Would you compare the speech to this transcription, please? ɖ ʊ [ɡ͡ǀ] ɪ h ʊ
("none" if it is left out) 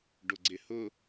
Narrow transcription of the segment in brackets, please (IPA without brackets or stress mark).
ɡ͡ǀ